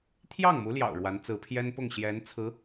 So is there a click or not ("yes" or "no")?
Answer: no